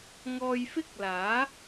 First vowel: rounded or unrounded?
rounded